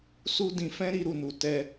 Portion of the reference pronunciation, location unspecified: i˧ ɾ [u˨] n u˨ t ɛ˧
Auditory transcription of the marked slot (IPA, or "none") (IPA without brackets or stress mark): u˨